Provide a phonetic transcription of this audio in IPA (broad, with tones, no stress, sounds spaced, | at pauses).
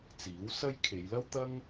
t͡s iː˨˥ w s ɐ˥ j kʰ e˨˧ j l ɐ˥ w t̪ ɐ˥ ŋ